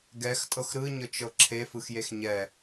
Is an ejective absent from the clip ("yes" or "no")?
no